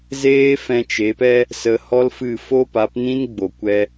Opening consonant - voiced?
yes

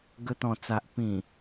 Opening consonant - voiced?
yes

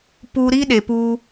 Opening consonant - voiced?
no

